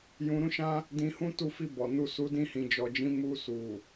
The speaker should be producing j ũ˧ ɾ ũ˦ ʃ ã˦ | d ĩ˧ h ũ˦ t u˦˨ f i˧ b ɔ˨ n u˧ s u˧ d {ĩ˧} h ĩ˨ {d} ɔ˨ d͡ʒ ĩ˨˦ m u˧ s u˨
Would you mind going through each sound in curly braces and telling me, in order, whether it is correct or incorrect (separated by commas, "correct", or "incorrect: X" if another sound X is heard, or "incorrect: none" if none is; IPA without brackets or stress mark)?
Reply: correct, incorrect: d͡ʒ